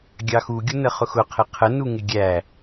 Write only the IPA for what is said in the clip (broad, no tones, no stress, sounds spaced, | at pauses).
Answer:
ɡʲ ɑ x u ɡʲ ʊ n ə χ ʊ x ʊ qʰ ɪ qʰ ə n u ŋ ɪ ɡʲ æ